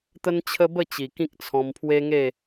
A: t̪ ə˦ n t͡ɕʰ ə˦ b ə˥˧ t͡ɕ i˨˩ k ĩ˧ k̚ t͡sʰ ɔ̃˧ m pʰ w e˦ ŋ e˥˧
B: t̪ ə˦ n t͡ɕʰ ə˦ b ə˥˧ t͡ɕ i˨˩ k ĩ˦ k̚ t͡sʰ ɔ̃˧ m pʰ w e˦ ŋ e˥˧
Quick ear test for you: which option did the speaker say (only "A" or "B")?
B